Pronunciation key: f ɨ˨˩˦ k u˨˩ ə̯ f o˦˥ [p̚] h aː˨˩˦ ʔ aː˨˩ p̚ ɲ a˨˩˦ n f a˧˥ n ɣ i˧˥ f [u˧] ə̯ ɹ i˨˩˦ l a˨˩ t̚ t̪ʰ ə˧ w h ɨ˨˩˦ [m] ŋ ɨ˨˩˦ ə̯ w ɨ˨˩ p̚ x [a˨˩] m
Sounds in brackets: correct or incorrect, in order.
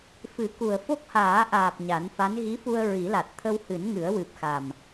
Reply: incorrect, correct, incorrect, correct

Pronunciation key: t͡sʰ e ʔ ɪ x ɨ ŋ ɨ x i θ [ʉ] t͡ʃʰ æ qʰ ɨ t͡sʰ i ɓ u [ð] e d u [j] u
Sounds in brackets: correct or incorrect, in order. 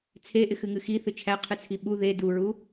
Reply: incorrect, correct, incorrect

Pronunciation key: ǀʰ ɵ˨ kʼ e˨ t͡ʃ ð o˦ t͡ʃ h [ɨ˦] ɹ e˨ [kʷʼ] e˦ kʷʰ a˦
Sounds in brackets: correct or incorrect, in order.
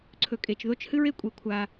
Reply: correct, correct

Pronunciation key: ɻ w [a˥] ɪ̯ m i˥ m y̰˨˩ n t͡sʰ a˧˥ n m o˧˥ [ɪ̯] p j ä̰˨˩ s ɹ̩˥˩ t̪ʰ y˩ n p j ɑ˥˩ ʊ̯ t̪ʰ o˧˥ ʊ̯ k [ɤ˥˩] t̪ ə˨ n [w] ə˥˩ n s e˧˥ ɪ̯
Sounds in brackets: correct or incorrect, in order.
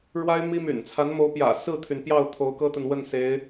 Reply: correct, incorrect, incorrect, correct

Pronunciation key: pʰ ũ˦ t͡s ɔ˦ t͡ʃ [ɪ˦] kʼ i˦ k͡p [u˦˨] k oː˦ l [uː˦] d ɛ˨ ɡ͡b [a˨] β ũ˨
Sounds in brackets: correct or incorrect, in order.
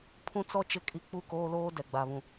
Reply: correct, correct, incorrect, correct

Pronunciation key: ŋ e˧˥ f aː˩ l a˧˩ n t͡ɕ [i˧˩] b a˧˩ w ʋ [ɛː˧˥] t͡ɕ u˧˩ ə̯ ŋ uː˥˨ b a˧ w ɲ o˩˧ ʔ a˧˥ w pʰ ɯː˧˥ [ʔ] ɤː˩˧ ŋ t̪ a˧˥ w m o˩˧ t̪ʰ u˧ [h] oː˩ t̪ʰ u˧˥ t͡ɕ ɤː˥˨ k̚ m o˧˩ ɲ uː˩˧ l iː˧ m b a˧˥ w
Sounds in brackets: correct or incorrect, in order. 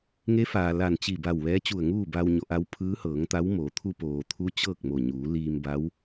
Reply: correct, correct, incorrect, incorrect

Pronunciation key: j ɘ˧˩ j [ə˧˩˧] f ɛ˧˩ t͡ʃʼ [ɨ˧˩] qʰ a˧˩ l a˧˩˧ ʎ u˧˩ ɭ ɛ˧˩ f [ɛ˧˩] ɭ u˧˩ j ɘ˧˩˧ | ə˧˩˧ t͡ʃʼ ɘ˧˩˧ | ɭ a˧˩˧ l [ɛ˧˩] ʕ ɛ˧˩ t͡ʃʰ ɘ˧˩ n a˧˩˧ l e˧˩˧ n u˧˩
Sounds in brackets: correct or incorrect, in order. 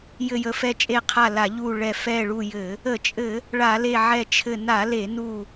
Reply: correct, incorrect, correct, incorrect

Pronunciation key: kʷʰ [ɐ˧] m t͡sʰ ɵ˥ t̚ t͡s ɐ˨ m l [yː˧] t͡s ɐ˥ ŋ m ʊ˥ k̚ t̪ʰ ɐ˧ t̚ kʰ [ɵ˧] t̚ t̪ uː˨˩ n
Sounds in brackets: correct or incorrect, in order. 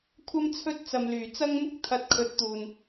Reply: incorrect, incorrect, incorrect

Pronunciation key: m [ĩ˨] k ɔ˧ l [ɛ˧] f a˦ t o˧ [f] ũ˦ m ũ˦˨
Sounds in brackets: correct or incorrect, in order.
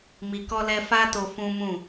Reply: incorrect, correct, correct

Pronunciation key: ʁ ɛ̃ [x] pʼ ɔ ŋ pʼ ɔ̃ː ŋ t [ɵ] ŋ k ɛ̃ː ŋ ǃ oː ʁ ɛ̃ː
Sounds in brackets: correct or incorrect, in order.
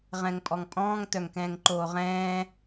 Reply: incorrect, incorrect

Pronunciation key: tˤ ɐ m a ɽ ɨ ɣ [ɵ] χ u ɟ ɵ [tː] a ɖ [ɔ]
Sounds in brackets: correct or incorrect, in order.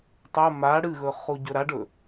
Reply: correct, incorrect, incorrect

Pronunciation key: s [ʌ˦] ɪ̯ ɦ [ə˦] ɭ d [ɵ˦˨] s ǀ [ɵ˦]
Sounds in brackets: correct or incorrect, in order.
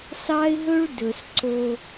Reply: incorrect, incorrect, incorrect, incorrect

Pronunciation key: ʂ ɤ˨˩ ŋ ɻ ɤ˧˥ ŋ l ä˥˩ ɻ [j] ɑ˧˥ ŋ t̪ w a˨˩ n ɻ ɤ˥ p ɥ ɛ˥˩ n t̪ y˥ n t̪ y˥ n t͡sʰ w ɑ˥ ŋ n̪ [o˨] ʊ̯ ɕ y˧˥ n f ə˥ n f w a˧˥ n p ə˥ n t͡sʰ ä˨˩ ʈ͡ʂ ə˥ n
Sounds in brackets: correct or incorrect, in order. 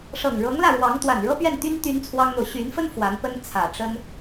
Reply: incorrect, correct

